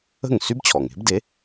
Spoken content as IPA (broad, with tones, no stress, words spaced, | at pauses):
ə̤˥˩ŋsy˥bt͡ɕʰɔ˩ŋe̤˩˥b de˩˥